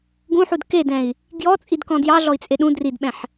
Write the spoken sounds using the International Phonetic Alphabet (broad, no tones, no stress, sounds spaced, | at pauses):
ɡ ũ ħ u d k e d ɛ̃ i̯ | ɡ j ɔ t͡sʼ i d k ɔ̃ d j ɑ ɮ ɔ i̯ t͡sʼ e ɗ ũ d r i d ɓ ɛ̃ ħ